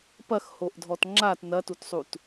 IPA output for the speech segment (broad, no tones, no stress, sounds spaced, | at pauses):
p ɐ x h o ʔ dʱ ɔ t ŋ͡ǁ a t n ɐ t u t sˤ u t